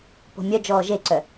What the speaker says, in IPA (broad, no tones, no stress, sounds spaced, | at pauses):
p o̤ mʲ œ d͡ʒ ɔː ʒ e ǀ œ